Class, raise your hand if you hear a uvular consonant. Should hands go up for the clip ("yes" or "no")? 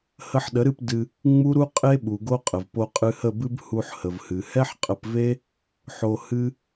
yes